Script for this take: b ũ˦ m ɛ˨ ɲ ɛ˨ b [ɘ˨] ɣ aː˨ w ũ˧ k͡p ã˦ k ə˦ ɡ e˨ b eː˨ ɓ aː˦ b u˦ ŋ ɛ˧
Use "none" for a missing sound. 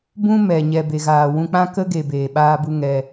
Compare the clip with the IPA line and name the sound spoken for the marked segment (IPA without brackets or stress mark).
e˨